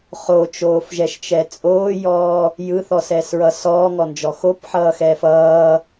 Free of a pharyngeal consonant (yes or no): no